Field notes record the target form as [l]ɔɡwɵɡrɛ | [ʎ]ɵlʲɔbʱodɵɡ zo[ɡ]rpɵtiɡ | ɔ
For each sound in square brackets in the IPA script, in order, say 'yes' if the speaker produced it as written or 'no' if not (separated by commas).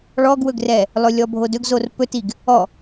no, no, no